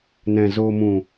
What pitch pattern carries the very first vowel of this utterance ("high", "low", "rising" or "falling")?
low